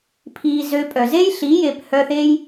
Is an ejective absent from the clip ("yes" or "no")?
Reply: no